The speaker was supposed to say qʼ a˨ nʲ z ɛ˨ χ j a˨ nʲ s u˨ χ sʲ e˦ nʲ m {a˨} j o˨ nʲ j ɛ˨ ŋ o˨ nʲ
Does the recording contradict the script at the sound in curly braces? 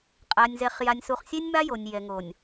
yes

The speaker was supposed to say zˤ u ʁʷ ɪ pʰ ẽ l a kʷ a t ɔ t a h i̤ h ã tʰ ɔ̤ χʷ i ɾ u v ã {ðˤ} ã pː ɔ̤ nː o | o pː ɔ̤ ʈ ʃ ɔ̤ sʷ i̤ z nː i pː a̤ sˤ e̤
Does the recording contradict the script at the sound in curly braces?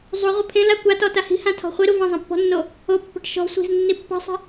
yes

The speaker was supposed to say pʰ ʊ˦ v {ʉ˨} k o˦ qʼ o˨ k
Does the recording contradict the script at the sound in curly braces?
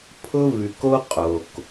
no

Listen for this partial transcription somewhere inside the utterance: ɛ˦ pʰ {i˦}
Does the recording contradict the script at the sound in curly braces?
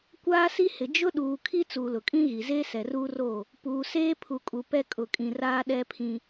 yes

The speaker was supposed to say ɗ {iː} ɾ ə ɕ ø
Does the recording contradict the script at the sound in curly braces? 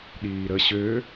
no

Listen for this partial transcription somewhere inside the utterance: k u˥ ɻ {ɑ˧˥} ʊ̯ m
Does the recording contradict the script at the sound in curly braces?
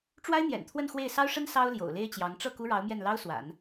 no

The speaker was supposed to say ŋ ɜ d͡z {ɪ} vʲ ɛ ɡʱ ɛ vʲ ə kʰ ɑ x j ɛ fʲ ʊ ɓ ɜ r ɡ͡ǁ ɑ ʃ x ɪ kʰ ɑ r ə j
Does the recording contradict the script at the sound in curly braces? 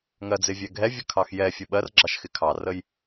no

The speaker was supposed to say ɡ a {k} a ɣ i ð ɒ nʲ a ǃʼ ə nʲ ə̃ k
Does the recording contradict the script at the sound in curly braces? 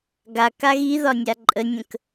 no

